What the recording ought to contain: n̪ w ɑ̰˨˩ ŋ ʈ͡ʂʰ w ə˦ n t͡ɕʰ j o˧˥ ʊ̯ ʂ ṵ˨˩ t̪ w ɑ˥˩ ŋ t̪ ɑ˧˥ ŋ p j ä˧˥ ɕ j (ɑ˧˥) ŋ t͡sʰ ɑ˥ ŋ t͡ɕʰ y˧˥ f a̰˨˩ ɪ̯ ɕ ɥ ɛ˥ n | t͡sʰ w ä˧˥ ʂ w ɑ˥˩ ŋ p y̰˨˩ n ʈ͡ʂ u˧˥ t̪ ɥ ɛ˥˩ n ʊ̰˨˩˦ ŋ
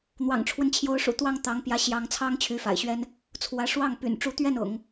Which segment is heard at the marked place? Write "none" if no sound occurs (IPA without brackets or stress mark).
ɑ˧˥